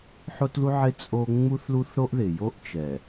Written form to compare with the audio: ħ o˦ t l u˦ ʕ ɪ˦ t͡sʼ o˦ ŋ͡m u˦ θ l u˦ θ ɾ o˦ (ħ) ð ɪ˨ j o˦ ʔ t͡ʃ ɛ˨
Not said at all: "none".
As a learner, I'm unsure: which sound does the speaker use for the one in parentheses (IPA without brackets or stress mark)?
ʔ